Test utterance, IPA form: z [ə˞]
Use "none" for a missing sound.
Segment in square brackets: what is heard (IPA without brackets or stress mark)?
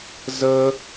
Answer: ə